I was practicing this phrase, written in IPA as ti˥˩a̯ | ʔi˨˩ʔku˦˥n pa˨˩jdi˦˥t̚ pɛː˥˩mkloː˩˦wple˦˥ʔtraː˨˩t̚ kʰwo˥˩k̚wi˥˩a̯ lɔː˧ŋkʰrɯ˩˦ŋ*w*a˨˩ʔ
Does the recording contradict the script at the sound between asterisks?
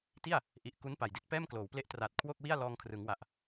no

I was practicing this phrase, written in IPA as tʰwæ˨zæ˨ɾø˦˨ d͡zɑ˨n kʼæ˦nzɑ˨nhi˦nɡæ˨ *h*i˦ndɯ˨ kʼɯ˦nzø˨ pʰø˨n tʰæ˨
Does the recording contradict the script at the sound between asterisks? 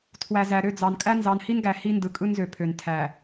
no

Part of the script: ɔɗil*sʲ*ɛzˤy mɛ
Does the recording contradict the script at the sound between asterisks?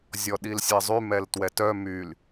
no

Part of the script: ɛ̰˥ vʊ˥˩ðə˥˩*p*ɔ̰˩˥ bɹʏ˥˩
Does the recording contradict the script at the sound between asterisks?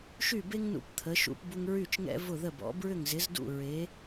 yes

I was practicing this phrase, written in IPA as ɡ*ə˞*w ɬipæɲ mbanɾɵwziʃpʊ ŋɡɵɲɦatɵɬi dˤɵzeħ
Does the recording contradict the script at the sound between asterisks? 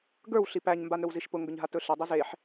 no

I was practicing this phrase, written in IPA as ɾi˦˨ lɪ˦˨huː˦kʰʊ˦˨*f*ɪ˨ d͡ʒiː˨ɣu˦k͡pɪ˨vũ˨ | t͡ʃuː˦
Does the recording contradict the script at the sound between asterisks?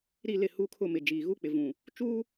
yes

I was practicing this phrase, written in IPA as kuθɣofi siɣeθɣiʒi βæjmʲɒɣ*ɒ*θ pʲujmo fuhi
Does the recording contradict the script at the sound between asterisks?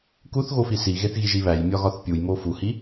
no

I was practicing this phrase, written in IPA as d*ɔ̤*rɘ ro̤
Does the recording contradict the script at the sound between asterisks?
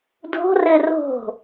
yes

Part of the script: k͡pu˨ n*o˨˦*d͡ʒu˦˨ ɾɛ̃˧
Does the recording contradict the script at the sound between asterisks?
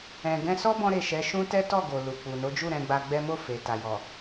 no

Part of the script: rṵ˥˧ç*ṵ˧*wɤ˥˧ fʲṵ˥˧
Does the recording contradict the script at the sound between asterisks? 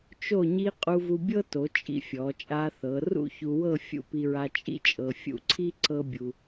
yes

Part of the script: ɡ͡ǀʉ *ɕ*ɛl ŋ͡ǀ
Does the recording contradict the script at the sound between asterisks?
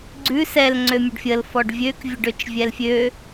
yes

